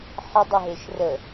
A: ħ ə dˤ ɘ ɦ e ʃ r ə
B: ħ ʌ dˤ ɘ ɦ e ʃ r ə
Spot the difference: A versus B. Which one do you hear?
A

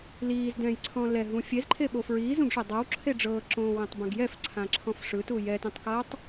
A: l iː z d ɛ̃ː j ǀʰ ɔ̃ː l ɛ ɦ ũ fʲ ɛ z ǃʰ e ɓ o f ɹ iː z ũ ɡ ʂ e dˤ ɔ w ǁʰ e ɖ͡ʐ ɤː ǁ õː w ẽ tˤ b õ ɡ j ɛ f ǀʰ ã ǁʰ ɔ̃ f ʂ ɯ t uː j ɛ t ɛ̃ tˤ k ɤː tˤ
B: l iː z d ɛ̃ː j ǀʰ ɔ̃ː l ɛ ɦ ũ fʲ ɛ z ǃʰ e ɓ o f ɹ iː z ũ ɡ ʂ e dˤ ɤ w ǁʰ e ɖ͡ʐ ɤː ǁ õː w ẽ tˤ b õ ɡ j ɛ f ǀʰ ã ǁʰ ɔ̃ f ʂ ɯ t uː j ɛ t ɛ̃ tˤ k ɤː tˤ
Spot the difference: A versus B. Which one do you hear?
B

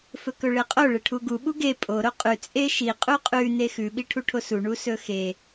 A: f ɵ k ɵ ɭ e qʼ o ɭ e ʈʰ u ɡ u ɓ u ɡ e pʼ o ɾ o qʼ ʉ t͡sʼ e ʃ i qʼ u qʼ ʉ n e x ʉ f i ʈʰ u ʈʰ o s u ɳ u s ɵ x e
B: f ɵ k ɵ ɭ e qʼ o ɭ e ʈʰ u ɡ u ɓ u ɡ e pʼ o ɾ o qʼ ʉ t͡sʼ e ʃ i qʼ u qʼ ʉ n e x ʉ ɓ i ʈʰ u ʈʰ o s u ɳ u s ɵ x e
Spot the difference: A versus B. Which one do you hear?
B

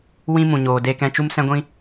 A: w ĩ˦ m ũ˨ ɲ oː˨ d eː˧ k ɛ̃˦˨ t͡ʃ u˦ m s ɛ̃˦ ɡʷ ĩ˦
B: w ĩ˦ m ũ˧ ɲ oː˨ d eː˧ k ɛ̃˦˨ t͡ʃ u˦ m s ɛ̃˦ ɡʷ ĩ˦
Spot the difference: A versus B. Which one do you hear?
A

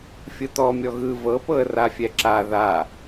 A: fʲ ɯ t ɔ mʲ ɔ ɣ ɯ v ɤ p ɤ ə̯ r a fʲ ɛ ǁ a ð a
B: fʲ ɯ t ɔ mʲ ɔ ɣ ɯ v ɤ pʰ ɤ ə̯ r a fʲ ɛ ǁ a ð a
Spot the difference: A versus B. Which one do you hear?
A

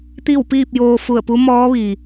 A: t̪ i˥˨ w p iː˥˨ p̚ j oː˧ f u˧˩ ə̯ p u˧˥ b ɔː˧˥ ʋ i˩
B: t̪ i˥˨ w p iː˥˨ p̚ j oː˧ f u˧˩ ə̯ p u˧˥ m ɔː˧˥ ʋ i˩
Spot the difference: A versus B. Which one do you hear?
B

